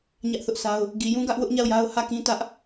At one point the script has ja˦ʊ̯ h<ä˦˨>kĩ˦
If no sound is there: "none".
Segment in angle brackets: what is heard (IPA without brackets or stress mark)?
ä˦˨